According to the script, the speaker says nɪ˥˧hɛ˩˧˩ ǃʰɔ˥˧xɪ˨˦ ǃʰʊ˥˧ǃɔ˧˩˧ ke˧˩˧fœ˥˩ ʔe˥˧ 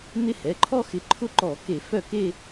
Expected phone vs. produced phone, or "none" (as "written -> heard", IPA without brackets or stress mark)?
ʔ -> k